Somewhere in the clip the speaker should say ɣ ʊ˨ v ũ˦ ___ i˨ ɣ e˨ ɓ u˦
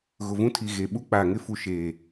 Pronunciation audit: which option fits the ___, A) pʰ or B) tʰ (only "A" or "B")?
B